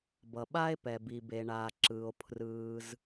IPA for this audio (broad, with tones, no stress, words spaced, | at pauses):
bʌ˩ɓa˥e̯pɛ˩ bi˩be˩ ɳaː˩ǁɯː˩o̯ pʰrɯː˩z